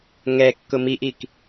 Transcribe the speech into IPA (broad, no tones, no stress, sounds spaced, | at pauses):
ŋ ɛ kː ʊ m i ʔ i k